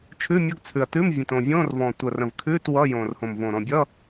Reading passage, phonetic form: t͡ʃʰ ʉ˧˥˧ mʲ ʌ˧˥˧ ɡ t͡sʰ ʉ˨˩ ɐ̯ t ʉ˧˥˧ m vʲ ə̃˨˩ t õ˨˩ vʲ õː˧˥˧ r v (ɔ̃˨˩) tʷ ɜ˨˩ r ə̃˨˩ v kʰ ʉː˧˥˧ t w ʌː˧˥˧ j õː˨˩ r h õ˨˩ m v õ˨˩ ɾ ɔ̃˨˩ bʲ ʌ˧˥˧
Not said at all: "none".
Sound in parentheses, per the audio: ɔ̃˨˩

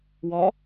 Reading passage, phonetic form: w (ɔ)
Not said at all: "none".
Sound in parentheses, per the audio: ɔ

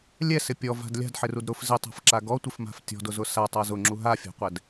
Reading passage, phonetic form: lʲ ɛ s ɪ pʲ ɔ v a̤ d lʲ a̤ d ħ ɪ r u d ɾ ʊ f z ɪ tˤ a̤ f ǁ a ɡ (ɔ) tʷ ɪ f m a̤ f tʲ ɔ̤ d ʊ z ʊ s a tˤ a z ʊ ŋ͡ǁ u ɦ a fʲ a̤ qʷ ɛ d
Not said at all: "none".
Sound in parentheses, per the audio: ɔ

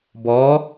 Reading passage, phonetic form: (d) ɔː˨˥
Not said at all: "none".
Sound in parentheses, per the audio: b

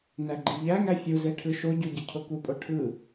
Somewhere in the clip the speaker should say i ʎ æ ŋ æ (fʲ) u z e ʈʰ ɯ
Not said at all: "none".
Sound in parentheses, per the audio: fʲ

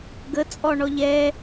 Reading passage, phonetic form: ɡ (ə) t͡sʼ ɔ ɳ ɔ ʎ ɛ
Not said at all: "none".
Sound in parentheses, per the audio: ə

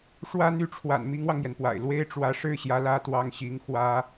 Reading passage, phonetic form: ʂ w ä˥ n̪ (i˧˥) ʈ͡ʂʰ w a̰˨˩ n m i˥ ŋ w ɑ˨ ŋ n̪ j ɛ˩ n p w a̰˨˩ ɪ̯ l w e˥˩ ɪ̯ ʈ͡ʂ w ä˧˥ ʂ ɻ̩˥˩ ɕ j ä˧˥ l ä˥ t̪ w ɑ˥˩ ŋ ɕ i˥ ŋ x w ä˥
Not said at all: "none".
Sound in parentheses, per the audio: y˧˥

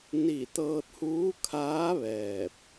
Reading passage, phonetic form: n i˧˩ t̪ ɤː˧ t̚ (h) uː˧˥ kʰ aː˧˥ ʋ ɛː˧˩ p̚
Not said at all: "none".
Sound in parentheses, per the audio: h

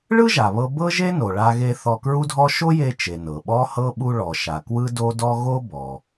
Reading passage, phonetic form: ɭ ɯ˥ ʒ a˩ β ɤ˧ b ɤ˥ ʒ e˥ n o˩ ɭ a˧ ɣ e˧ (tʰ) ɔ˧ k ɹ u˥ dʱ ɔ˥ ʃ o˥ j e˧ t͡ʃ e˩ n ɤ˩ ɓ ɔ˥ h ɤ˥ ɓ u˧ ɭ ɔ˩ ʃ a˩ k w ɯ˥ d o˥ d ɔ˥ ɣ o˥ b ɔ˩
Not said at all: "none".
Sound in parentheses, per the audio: θ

